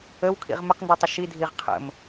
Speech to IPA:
ə w kʰ ḭ ʁ m ə q n d y tˤ ə ʃ i dʱ i ʁ qʰ ə̰ m

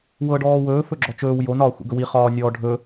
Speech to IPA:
w ɤ ɖ ɔː w ɵː f ɵ ɡ͡ǁ ɔ t͡ʃ ɵː w j o n ɒː xʷ ḭ ɡ ɵ w i χ ɒː nʲ ɔː ɖʱ ɵ

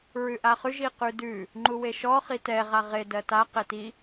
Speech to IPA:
ɹ ʉ ʔ a χ ʉ ʒ i q ʉ d ʉ | ŋ͡ǃ u w e ʃ ɔ χ i t ɛ ʁ a ʁ e d ɜ t a q e t i

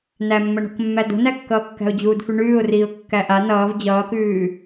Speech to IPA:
n æ mː ʌ ɳ o̤ k mː æ d o̤ n æ kː ʌː kː æ̤ ʊ̯ d͡ʑ uː d f ʉ ɳ ʉː ʊ̯ r iː ʊ̯ kː æ ʔ a n ʌː v d͡ʑ ʌː k ʉː

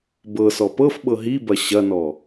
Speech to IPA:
b ɤ s ɔ p ɤ f ɓ ɤ ɦ i b ɐ ɕ ɐ n ɔ

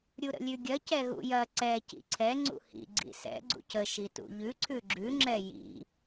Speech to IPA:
ɾʲ u ɾ ə̰ lʲ ʉ ɡʲ ɐ c ɛ ɣ ṵ j ɐ ǀ ɛ c ḭ ǀʰ ɛ ŋ͡ǀ ṵ h ḭ ɡ͡ǀ ḭ s ɛ̰ ɡ͡ǀ ṵ c ə ʃ i t ṵ ʎ ʉ ǀʰ ʉ ɡ͡ǁ ʉ ŋ͡ǁ ɛ j ḭ

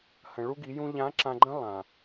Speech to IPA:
h ə̃˨ ɭ u˦ ɡ i˨˦ j ũ˦ ʎ ã˨˦ ǁ ã˨ ɡ͡ǃ ə̃˦ lˠ ã˨

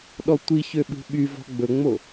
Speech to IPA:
ɗ ɔ tʷ i ç ø ɓ ṳ ɓ y v ɔ̤ ɡ͡b ɵ ŋ͡m o

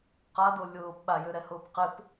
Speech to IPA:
q a d o lʲ ʊː p ɓ a j ø ɾ ɛ h ʊː p q ɪ p

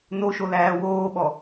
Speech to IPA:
n o ʃ o l æː w oː ɓ ɔ

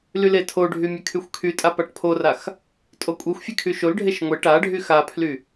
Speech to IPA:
l y l e tʰ o ɖʱ y mʲ e kʰ y xʷ kʰ y tʼ a p a ʈ pʰ o r a x | tʼ o kʷʼ e xʷ fʲ e kʰ y ʃ o l ɖʱ e ʃ ŋʷ e ʈ a ɖʱ y x a pʰ l y

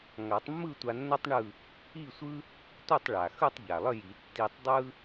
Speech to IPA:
ŋ a˨˩˦ tˤ mː ɯ˥˧ tʷ a˧ nː o˥ tˤ ɳ ɯ˥˧ | i˥˧ sʷ ɯ˥ | tʷ ɯ˥˧ tˤ ɭ a˩ x ɯ˥˧ tˤ ʎ a˩ lˠ ə˥˧ j i˨˩˦ tː i˧ tˤ dˤ ɯ˥

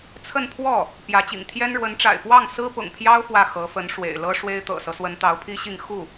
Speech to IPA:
t͡sʰ ə˥˧ n pʰ w ɔ˥˩ | p j ä˧˥ t͡ɕ ḭ˨˩ ŋ t̪ʰ j ɛ˥ n ɻ w ə˧˥ n ʈ͡ʂ a̰˨˩ ɪ̯ p w ɑ˥˩ ŋ s ɹ̩˥ p ʊ̰˨˩ ŋ pʰ j ɑ˥ ʊ̯ f w ä˥˩ x ɤ˧˥ f ə˧˥ n ʂ w ḛ˨˩ ɪ̯ l ɤ˥ ʂ w e˥ ɪ̯ t̪ ɤ̰˨˩ s ɤ˦ s w ə˧˥ n t̪ ɑ˧˥ ʊ̯ pʰ i˥ ɕ i˥˧ ŋ x u˥˩

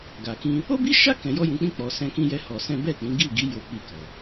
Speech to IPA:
ɡ a˨ k ĩ˧ | o˦ b i˦ ʃ a˦ k ɛ̃˧ j ɔ˦ j ũ˧ k͡p ĩ˦ k͡p ɔ˧ s ɛ̃˦ k ĩ˦ j ɛ˦ h ɔ˧ s ɛ̃˦ b ɛ˦˨ k͡p ĩ˨˦ ɡ i˦˨ ɡ i˨˦ j o˦ k͡p i˦˨ k ɔ˨

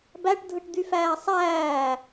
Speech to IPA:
b æ ʈ dʱ ɯ ʈ d̪ y f æː sˤ æː

